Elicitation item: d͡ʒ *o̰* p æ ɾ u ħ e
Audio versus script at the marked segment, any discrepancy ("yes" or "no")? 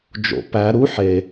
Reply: no